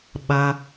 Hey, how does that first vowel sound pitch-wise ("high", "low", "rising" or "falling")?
low